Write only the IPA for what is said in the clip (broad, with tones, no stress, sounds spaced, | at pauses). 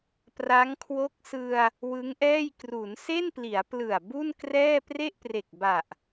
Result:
p r a˦˥ ŋ kʰ w o˦˥ k̚ s ɯ˧ a̯ | w ɯ˦˥ ŋ ʔ ɛː˥˩ j k r u˩˦ n s e˥˩ n p l i˩˦ a̯ p l ɯ˨˩ a̯ b u˥˩ n k r ɛː˥˩ p r e˥˩ ʔ p r e˨˩ k̚ b a˨˩ ʔ